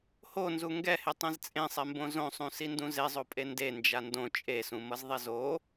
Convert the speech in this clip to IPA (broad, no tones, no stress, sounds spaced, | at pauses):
h o n z u ŋ ɡ ɛ h e tˤ ẽ z t͡sʼ ẽ sˤ ɛ m b õ z õ sˤ ũ s i n d ũ z e zˤ o pʼ e n d e n d͡ʒ a n d õ t͡ʃʼ e s ũ m ʌ z ðˤ e z o